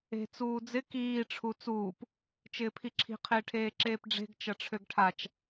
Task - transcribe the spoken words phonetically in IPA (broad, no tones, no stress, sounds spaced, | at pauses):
e̤ t͡s uː d͡z ɪ k iː ʈ͡ʂʰ u t͡s uː p | t͡ʃ ɪː pʰ i ǁʰ i̤ qʰ ɪː ʈʰ eː ǁ eː p ɖ͡ʐ e̤ ɡ t͡ʃ ɐ ʈ͡ʂʰ ø ɡ ʈʰ a t͡ʃ